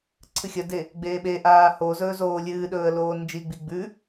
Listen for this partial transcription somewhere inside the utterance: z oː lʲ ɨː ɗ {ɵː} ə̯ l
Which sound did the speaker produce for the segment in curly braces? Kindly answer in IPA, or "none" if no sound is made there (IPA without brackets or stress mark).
ɵː